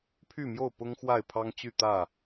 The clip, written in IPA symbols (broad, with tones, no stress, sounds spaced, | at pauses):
pʰ y˥˨ m j o˥˨ ʊ̯ p ʊ˦ ŋ x w a˥˨ ɪ̯ pʰ ɑ˦ ŋ t͡ɕ y˥˨ t̪ ä˥˨